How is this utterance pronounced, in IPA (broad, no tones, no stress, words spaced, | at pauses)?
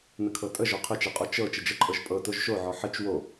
nəkʰɤtʼə ʒɔqʰət͡ʃɛqʼo t͡ʃɤ t͡ʃəd͡ʒəǃʼɤʒ pʼɤ toʒʃoʕɔ ħət͡ʃ wo